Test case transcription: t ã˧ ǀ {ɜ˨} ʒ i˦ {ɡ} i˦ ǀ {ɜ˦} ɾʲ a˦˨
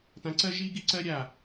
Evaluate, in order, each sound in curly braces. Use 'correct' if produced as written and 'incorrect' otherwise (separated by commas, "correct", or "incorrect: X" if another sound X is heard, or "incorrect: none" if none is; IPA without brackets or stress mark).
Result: incorrect: ɜ˦, correct, correct